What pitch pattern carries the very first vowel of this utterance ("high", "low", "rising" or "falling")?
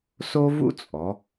high